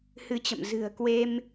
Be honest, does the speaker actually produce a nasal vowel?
no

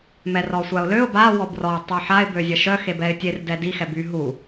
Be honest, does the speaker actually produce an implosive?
no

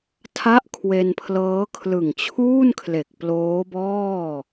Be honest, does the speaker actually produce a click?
no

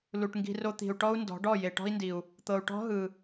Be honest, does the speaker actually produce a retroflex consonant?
yes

